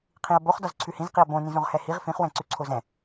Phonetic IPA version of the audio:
qʰ ĩ ɐ̯ b o χ d ɒ z ǀʰ ʉ h ĩ z q i ɐ̯ b õ n ĩ z õ ʁ h ɛ h i ʁ f ĩ χ w ɛ̃ ǀ ʉ ǀʰ o z ɛ̃

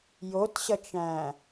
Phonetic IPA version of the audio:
j o t ɕ ʌ t͡ʃ æ̃

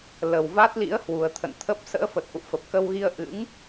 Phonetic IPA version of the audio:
l ə˨˩ w v a˦˥ t̚ l ḭ˧˥ ə̯ h w u˨˩ ə̯ t̪ʰ ə̰˧˨ n t̪ʰ ə˦˥ p̚ s ə̰ː˧˥ f ə˨˩ t̚ ʔ ṵ˧˨ f ə˨˩ p̚ k ə˧ w ɣ i˧ ə̯ ʔ ɨ̰˧˥ ŋ

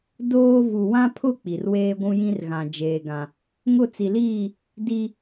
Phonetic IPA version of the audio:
d oː˦ v u˨ w ã˦ pʰ ʊ˦ k͡p i˨ r w eː˦ ɡʷ ũ˦ j ĩ˦ r ɣ ã˨ d͡ʒ eː˨ ɡ ã˨ | ŋ ʊ˦˨ t͡s i˨ l iː˦˨ | d i˦

